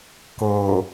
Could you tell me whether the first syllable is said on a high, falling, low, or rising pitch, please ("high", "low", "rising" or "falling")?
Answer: low